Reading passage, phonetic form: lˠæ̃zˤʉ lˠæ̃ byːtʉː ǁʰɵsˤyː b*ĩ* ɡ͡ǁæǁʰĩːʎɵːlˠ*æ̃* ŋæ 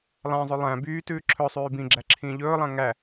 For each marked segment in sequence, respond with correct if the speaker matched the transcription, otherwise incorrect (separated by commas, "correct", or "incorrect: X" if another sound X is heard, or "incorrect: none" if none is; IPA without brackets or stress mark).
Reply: correct, correct